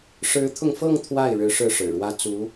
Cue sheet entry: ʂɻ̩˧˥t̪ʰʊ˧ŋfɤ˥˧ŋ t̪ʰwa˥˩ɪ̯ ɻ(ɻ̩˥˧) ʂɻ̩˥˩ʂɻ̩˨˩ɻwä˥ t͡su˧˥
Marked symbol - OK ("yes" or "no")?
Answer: no